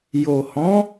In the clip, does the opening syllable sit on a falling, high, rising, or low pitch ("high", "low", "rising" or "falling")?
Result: low